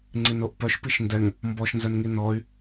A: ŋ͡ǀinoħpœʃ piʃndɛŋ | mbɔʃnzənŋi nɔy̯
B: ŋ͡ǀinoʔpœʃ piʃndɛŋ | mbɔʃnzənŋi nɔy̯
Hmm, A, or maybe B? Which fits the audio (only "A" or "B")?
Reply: B